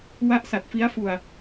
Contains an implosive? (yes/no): no